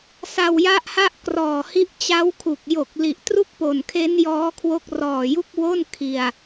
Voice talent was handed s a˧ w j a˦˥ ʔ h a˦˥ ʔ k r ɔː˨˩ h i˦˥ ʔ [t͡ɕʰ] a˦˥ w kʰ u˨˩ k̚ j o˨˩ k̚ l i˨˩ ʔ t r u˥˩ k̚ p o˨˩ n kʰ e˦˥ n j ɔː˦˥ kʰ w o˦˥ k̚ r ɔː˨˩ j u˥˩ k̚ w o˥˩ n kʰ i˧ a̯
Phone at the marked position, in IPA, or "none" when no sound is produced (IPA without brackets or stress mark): t͡ɕ